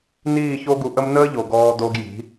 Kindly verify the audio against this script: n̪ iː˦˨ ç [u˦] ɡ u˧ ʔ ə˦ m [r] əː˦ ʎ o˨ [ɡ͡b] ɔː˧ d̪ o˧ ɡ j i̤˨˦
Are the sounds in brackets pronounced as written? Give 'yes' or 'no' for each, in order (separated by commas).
no, no, no